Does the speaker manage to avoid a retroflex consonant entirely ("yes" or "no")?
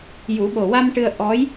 no